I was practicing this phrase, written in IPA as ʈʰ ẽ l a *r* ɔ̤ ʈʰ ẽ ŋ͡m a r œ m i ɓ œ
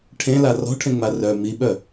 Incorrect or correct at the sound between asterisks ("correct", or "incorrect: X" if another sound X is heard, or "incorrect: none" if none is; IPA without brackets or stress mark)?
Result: correct